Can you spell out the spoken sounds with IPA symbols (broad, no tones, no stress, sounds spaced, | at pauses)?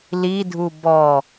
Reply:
l i dʱ u b ɔ